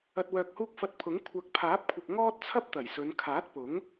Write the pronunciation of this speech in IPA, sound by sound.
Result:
ɐ˨t̚wœː˨k̚huː˧k̚ fɐ˧t̚pʰʊ˨˥ŋ kʷʰɐ˨˥k̚pʰaː˨˥p̚kʷʰɪ˨k̚ ŋɔː˥t̚t͡sʰɐ˥p̚t̪ɐ˨˩j sɵ˨˧n kʰaː˨˥t̚pʊ˨˥ŋ

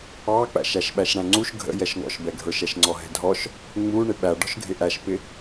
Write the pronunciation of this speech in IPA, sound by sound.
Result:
ɑk͡pæ̰ʃ æʃɓæʃɽæ̃ŋ͡ǀuʃ ɡʱə̰ jɛʃŋɔ̰ʃbɛɡʱə˞ʃ ɛʃŋ͡ǀɔɦɛ̤dʱɔʃ | ŋ͡mu ɳɪɓæ ɖɔ̤ʃɡʱɪʔæʃpɪ

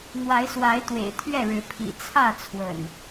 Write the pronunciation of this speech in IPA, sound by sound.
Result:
n̪wa˨˦ɪ̯swa˨˦ɪ̯t̪wḛ˨˩ɪ̯ t̪ʰɥɛ˥˨ɻɻ̩˨˦pʰḭ˨˩ t͡sʰä˥˨t͡sʰwə̰˨˩n

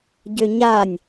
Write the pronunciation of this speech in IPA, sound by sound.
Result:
ɟøɲanʲ

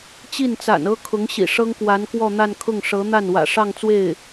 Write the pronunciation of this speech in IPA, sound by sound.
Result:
t͡ɕi˥˩nt͡sa̰˨˩n ɤ˥kʰʊ˧˥ŋɕḭ˨˩ ʂɤ˥ŋkwa˧˥nkwɔ˥˧n̪a˥˧n kʰʊ˥˩ŋʂɤ˧˥ n̪a˥˩n wä̰˨˩ʂɑ˥˧ŋt͡swe˥˩ɪ̯

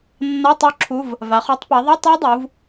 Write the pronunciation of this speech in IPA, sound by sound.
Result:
nːa˧˥˧ tˤu˦˥ǁʰu˧˥˧v | va˩˧χ u˦˨tˤpa˩˧ðˤɛ˧˥˧ tˤo˦˥dˤu˩˧v

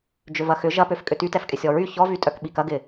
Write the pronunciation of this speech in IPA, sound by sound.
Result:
d͡ʒʏvɐxʏ ʒɐpøf kʼʏtytɛfkʼɪ sʲɔɹy çɔvytʼœk ɓikɐɡɪ

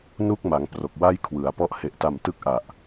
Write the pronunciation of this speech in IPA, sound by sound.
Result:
nu˥˩k̚ma˩˦ŋ pro˨˩k̚wa˥˩jkʰwɯ˩˦a̯pɔ˦˥ʔ he˨˩ʔta˨˩mtɯ˦˥k̚ ʔa˨˩ʔ

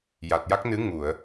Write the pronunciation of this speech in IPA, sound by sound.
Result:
ja˨˩t̚ja˦˥k̚nɨ˧˥ ŋu˨˩˨ə̯

